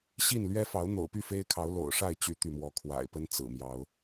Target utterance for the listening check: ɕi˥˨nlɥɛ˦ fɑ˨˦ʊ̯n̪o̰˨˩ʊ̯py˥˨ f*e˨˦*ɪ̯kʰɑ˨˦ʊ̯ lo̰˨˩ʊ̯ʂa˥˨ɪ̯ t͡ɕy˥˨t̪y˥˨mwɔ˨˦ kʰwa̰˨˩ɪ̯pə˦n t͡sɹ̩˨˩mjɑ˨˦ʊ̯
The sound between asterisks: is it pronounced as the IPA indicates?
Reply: no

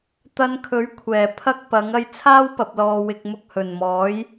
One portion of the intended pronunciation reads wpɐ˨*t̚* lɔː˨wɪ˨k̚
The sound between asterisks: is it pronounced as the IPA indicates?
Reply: no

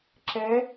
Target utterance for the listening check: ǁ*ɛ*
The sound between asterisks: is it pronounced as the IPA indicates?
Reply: yes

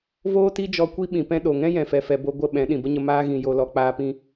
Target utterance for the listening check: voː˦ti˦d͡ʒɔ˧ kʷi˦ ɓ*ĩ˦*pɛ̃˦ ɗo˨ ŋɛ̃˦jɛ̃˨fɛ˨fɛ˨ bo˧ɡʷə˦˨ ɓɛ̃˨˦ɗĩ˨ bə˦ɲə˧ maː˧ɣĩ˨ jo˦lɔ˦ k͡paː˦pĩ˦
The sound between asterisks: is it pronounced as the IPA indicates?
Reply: no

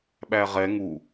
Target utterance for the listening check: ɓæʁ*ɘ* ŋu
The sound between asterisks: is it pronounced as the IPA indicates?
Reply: no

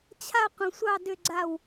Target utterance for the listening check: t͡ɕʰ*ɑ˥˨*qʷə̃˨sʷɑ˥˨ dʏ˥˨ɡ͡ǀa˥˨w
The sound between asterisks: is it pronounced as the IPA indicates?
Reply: no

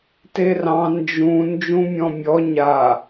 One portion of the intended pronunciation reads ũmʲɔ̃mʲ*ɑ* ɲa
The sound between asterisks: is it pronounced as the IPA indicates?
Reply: no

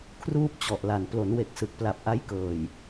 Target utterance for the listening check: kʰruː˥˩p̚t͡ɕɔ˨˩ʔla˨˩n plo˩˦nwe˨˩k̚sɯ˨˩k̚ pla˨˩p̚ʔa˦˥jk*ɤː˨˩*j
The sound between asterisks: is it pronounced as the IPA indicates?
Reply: yes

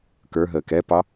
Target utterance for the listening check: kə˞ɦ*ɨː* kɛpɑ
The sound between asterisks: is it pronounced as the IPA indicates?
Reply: no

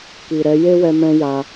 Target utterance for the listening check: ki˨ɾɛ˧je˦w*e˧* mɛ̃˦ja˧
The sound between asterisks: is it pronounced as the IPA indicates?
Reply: no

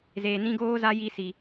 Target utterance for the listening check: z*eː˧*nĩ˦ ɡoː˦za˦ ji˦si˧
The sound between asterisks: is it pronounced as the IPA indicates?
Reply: yes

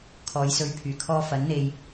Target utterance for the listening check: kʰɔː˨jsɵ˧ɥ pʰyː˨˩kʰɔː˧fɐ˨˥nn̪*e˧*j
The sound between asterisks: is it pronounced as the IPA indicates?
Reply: yes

